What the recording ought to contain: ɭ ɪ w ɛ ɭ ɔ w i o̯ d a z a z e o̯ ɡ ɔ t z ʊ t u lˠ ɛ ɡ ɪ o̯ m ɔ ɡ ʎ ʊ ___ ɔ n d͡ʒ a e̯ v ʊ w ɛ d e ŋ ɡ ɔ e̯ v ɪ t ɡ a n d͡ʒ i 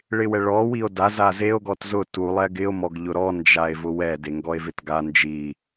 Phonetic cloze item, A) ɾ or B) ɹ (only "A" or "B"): A